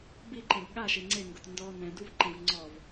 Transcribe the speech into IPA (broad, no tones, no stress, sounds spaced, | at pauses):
b i ǃ ɛ̃ b ɠ a ʃ e ŋ͡ǀ e ŋ ɡ ʊ t n d ɔ n ɛ̃ d u v ǃ ɛ̃ v ŋ͡ǀ ɔ v